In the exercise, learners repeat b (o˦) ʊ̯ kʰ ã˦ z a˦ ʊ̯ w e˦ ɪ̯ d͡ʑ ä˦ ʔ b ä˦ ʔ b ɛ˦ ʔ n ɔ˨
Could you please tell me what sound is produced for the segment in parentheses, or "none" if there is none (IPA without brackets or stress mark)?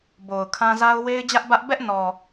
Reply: o˨